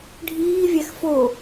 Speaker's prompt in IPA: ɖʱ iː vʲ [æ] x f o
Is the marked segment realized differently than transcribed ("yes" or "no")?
no